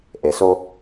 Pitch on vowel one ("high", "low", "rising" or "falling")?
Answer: low